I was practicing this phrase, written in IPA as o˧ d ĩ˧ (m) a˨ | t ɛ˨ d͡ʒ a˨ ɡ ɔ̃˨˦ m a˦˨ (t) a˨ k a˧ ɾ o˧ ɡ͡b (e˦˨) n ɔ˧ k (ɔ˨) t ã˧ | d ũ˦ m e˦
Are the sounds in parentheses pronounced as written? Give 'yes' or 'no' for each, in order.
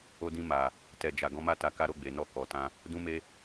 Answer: yes, yes, no, yes

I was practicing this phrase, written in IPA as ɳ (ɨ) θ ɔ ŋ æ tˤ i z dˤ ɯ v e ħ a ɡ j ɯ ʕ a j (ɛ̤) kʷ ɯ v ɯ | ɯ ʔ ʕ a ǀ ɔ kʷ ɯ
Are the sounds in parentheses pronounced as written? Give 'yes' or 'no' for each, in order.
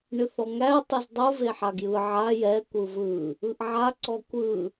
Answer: yes, no

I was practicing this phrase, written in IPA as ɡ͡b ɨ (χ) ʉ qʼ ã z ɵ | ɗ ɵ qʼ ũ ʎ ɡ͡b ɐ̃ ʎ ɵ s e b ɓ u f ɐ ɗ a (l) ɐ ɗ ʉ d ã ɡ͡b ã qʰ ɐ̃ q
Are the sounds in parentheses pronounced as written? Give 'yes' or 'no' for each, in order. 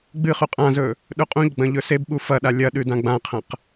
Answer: yes, no

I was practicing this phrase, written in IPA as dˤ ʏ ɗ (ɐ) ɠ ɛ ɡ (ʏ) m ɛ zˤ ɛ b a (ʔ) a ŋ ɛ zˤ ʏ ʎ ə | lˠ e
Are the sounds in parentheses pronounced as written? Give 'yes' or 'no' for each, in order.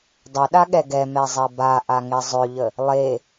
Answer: no, no, yes

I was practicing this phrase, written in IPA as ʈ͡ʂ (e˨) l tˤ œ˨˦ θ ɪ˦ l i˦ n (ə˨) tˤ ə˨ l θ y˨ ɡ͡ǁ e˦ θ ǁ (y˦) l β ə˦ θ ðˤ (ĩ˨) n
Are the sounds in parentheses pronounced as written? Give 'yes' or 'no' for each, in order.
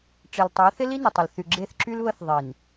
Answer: yes, yes, yes, no

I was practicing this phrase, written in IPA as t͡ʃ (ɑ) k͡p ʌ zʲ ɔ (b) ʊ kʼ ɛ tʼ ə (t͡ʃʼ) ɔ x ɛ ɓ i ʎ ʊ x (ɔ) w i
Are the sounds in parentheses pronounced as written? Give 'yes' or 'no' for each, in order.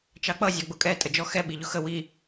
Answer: yes, no, no, no

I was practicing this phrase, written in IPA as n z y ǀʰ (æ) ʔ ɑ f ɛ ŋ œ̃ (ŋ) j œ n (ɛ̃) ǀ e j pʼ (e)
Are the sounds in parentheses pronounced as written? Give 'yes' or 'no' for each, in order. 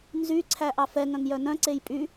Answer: yes, yes, no, no

